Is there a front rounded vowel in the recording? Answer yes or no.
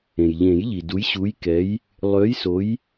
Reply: yes